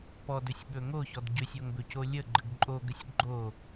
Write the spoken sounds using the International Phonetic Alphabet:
p ɔ d ɵ sʲ ɠ ɵ ŋ o ç ɔ d ɟ ɵ sʲ o ŋ b ɵ c o lʲ ə ɡ͡ǃ ə ɡ ǃʼ o ɡ ə sʲ ɡ͡ǃ o

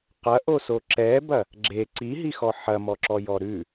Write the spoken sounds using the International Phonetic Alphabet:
q ɐ ʔ o s o ǁ ɛ b ɐ | ɡ͡ǁ e ǀ i ɦ i x ɔ ħ ɐ m ɔ ǁ ɔ j ɔ ɾ ʉ

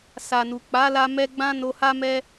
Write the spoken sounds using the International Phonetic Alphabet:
s a˨ n u˨ k͡p a˨˦ l a˧ m ɛ˧ ɡ͡b ã˦ n o˧ h a˦ m ɛ˦

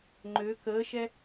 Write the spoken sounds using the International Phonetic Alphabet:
ŋ͡ǃ ø k əː ʃ ɛ

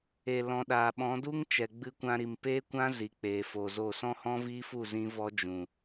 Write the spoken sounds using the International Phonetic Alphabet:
e˨ l ɔ̃˨ ɗ aː˨ ɓ ɔ̃˨˦ d u˦ ŋ t͡ʃ ɛ˨ ɡ͡b ɨ˧ kʷ ã˧ ɾ i˨ m p eː˦ kʷ ã˦ z i˨ k͡p eː˨ f o˨ z o˦˨ s ɔ̃˦ h ɔ̃˦ v iː˦ f u˦˨ z ĩ˦ v ɔ˦ d͡ʒ ũ˨

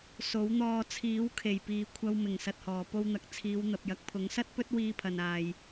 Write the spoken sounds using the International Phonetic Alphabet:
s o˨˥ w n̪ ɔː˧ t͡sʰ iː˨˥ w kʰ e˨˩ j p iː˨ kʷʰ ɐ˧ w m ɪ˨˩ ŋ s ɐ˨ t̚ h ɔː˨˩ p o˧ w n̪ ɐ˨˥ k̚ t͡sʰ iː˨˧ w n̪ ɐ˨ p̚ j ɐ˨ k̚ pʰ ʊ˨˥ ŋ s ɐ˥ t̚ p ɵ˥ t̚ w iː˧ pʰ ɐ˨ n aː˨ j

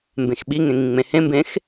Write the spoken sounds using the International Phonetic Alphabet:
m b ẽ x ɓ i ŋ ẽ ŋ ĩ ŋ͡m ẽ h ẽ m b ẽ x

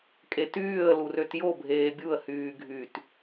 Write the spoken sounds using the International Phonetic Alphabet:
kʼ e t yː ə̯ l u r ø t j o bʱ eː bʲ u ə̯ h yː ɡʱ y t

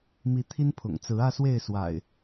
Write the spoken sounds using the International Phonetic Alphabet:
m i˨˦ t̪ʰ i˦ n pʰ ʊ̰˨˩ ŋ t͡s ɹ̩˨˦ ä˥˨ s w e˥˨ ɪ̯ s w a̰˨˩ ɪ̯

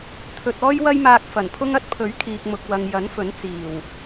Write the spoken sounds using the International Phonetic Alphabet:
t̪ʰ ɵ˨ t̚ ɔː˥ j w ɐ˥ j m aː˧ k̚ f ɐ˨˩ n pʰ ʊ˥ ŋ ɐ˥ t̚ pʰ ɵ˨˥ ɥ kʰ iː˨ k̚ m ʊ˨ k̚ w ɐ˨ ŋ j ɐ˨˥ n f ɵ˨˥ n t͡s iː˨˩ w

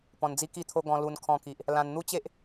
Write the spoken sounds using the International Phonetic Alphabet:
p ɔ̃˧ n d͡z i˦ k i˥˧ t̪ʰ o˦ ɡ ɔ̃˧ l u˧ n kʰ ɔ̃˧ k i˨ ʔ | l ã˧ n n̪ u˦ t͡ɕ e˦ ʔ

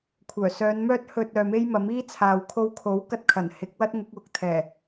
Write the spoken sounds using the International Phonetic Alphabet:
kʷʰ œː˨˩ s œː˨˧ n m œː˥ t̚ h ɵ˧ t̚ œː˨ m e˥ j m ɐ˨˥ m iː˥ t͡sʰ aː˨ w kʰ o˧ w kʰ o˨˥ w k ɐ˧ t̚ kʰ ɐ˨˩ n h ɪ˨˥ k̚ w ɐ˥ t̚ ŋ ʊ˨˥ k̚ w ʊ˨ k̚ t̪ʰ ɛː˨˩

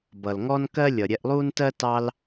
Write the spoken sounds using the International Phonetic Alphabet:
b ʌ˨ l ŋ ɔ˦ n k ɜ˦ lʲ ʌ˨ ɾʲ ɛ˧ ʔ lˠ uː˦ n t ɜ˦ t ɑ˦ l

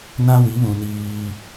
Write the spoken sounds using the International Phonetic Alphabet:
n ã˦ w i˨˦ β ũ˨ n iː˦

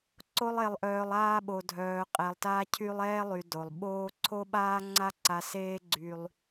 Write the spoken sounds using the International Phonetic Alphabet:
ǀ o˧ lˠ e˩ lˠ ʔ œː˩ lˠ aː˧ ɓ o˩ dʱ œː˩ qʼ ɛ˩ lˠ t a˧ cʰ y˧ lˠ ɛː˧ lˠ y˩ d o˩ lˠ ɓ oː˥ ǀʰ o˥ ɓ aː˥ ŋ͡ǀ a˥ ǀ a˧ s eː˥ ɡ͡ǀ y˧ lˠ

